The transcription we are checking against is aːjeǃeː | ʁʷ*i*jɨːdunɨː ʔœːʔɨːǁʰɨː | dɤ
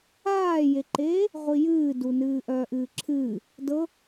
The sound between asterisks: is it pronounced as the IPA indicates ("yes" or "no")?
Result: yes